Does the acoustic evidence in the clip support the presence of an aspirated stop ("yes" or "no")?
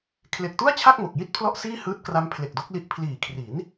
yes